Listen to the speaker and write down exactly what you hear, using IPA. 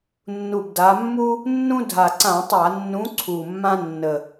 nː u˨˩ b d a˩˧ mː u˦ | nː ũ˦ dʱ a˨˩ ǀ ã˧˩˧ tˤ a˧˩˧ nː ũ˨˥ ǀʰ u˨˩ mː ã˦ nː ə˨˩

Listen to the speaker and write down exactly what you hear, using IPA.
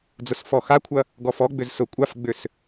d͡z ʊ s f ɔ x a kʷʰ ɐ | ɡ ɔ f ɔ ɡ͡b ʏ z s ʊ kʷʼ a f ɡ͡b ʏ s

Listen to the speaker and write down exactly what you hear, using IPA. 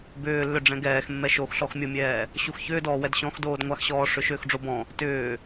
b ʏː lː ʏ ɖ͡ʐ ɛ̃ ɡ ɛː x mː ɛ ʃ o x ɬ ɔ x mʲ o mʲ ɛː | ɕ u x ç ʏː d ɔː w ɛ d ɕ ɔ̃ x d oː d ŋʷ a x ɕ ɔː ʂ ʏ ʃ ʏː x ɖ͡ʐ o b ɔ̃ | t ʏː

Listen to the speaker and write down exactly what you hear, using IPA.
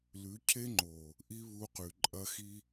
l ʉ˨˦ cʰ e˦ ŋ͡ǃ o˨ | ʔ i˦ β u˧ q ʉ˨ ǃʼ ɐ˧ x i˧

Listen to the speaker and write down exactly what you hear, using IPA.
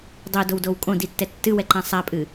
dˤ o d o w d o w kʼ õ d i tː ɛ tː ɨ w ɛ ǃ ã sˤ a pʼ ɨ

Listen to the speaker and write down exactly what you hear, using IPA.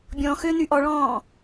bʲ ɔ̃ x ø n y ʔ ɔ ɭ ɔ̃ː

